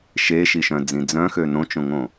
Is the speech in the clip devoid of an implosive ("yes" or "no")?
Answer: yes